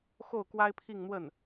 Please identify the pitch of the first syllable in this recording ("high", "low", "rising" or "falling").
falling